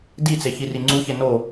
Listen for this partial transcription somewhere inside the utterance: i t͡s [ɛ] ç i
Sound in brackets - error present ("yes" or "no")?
yes